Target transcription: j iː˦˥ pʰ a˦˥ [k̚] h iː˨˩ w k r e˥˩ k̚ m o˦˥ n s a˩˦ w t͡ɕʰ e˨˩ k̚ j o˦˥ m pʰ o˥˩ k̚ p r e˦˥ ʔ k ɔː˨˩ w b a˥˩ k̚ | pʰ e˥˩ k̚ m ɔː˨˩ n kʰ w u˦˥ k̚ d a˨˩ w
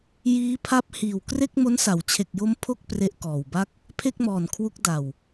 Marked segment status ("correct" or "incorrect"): incorrect